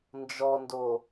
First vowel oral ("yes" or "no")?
yes